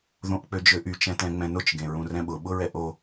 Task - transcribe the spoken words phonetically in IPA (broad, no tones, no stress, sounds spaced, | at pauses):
ð õ ʔ k͡p ø d͡ʒ ø ʔ y t͡ʃ ɛ̃ t ɛ̃ ŋ͡m ɛ̃ n ʊ t͡ʃ ɡ ẽ ɹ ũ r ɛ̃ ɓ ʊ ɓ ʊ ɹ ɛ ʔ o